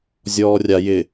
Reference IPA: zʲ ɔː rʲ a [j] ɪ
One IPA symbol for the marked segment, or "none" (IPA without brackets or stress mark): j